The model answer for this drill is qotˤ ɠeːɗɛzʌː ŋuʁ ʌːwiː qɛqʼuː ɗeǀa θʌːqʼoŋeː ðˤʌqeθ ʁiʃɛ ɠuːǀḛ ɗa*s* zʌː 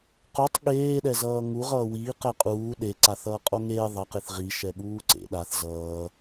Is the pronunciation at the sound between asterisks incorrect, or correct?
incorrect